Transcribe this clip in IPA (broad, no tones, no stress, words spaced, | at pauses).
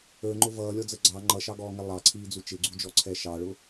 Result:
ə˞ŋ͡ǃʊ vʌːlʲɔd͡zə ɡ͡ǀɑ ŋ͡ǃʌʃɑɡɔːŋɛ lˠɑǀʰiːd͡zu t͡ʃɪɡ͡ǀud͡ʒɔǀʰɛ ʃɑɭʊ